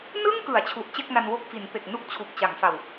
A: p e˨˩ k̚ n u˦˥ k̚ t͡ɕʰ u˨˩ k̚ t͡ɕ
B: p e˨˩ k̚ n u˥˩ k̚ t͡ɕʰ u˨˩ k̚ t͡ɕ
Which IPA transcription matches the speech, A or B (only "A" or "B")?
B